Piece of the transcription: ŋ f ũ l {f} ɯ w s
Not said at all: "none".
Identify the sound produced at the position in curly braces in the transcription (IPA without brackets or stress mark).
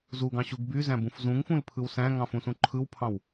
pʰ